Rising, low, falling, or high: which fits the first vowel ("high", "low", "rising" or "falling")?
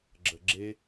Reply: low